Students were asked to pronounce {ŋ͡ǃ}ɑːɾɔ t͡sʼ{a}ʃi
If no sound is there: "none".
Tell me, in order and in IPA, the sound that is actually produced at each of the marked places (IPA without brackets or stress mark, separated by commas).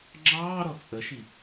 ŋ͡ǁ, ə